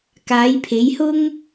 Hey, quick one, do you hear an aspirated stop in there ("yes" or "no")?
yes